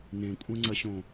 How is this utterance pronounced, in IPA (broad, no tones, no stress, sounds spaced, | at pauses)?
n ẽ kʷʼ ɛ̃ ŋ͡ǀ ɐ ɕ õ